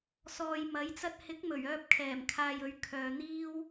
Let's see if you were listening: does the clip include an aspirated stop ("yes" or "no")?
yes